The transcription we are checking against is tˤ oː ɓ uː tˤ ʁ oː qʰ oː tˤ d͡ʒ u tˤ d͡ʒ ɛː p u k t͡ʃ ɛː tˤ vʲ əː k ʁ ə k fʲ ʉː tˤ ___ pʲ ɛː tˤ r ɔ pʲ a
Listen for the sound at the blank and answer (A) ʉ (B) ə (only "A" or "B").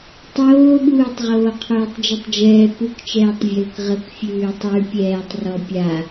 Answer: A